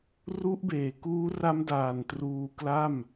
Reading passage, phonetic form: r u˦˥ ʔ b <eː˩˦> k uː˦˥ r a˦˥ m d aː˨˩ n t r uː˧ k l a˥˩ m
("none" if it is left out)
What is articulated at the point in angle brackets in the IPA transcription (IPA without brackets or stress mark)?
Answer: eː˨˩